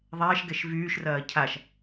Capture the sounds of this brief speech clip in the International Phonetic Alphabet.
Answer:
ðˤ ɛː ʃ ɡ ɛ ʃ v yː ʃ r ɐː cʰ a ʃ

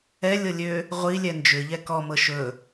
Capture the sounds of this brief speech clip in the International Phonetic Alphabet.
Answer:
ɛ lʲ ɤ lʲ ø | ʁʷ i lʲ ɛ n d͡ʒ ʏ ʎ ɛ k ɔ m ɤ ʃ ɵ

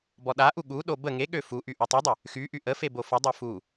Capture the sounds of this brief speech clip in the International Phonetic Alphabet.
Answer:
b ɔ ɗ a ʔ u ɠ u ɗ o b ə ŋ e ɠ ø f u ʔ y ʔ u tˤ y dˤ ə | x y ʔ y ʔ ə f e b o f ə dˤ o f u

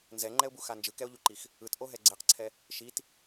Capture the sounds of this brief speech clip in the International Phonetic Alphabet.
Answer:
n z ɛ ŋ͡ǃ ɛ ʊ̯ b u x a n d͡ʒ ɯ k ɛ ʊ̯ ʎ u ǃ i x | ɯ t ʔ o ɦ ɛ ɡ͡ǀ e q ǀʰ ɛ | ʃ i t

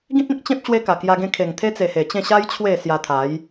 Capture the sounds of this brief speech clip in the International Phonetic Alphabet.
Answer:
ɡ ĩ˦ t̚ ẽ˦ k̚ t͡ɕ ẽ˦ p̚ ɕ w e˦ k a˨˩ k j a˧ ɡ ẽ˧ kʰ e˨˩ ŋ t̪ʰ e˦ t͡s e˨˩ h e˨˩ t͡ɕ ẽ˥˧ ɕ a˦ j t͡ɕʰ w e˥˧ s j a˧ t̪ʰ a˨˦ j

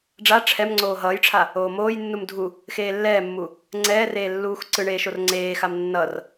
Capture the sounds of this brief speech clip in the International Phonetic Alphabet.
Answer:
ɖ͡ʐ a ʈ͡ʂʰ ɛ m ŋ͡ǀ oː ɦ ʌː j ʈ͡ʂʰ a | oː m oː j nː u m dʱ u | x eː lː ɛː mː u | ŋ͡ǀ ɛː r eː lː uː x ǀ ɯ ɳ eː ʃ o r ŋ͡ǀ eː x a m nː ʌ r

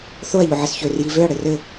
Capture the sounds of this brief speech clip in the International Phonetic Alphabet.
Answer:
θ o ɐ̯ ʎ o ʕ ɘ s ç ø r j i v ø ɐ̯ ɽ ɘ r ɘ

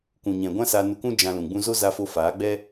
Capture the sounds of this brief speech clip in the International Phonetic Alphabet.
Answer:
k ũ˨ ɲ ɛ̃˨ ɡʷ ã˦ s a˧ n u˧ k ũ˦ d͡ʒ ã˧ l ũ˨ ɡ͡b ũ˧ z o˦ z a˧ f o˧ f aː˨˦ ɡ͡b ɛ˦

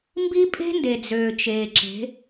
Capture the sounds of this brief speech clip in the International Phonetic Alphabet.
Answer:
m b i˦ pʼ e̤˦ n d e˨ d͡z øː˨ t͡ʃ eː˨ ǁ e̤˨˦

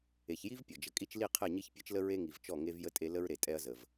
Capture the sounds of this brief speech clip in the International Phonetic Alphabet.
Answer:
e˨ ç j i˦ v pʲ ɔ˨ d͡ʒ ə˨ kʼ i˦ t͡ʃ l i˦˨ qʰ ɛ˦˨ ɲ i˦ ç pʲ e˦ t͡ʃ l ə˦ ɹ e˦ ŋ i˨ v t͡ʃ ɔ˦˨ ŋ e˦ v j ə˦ tʼ e˦ l ə˦ ɹ ɾ e˨ tʼ ɛ˦ ɐ̯ z ə˨ v

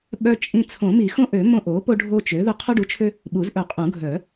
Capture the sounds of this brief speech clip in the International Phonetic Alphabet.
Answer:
ɓ œ˦ t͡ʃʼ ĩ˦ t͡sʰ õ˨˩˦ m i˨˩˦ x õ˦ ʔ ø˨˩˦ m õ˦ ʔ o˩˥ p o˦ ɖʱ o˦ t͡ʃ ø˩˥ ð ʊ˦ qʰ o˦ ɖ u˩˥ t͡ʃʰ ø˦ | ɓ u˨˩˦ z ʔ œ˨˩˦ qʼ ũ˨˩˦ ɡʱ œ˨˩˦

